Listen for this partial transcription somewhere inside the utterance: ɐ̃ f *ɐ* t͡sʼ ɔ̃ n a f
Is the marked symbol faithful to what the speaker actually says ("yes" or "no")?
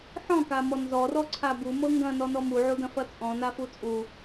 yes